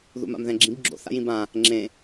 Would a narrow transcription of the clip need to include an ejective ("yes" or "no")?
no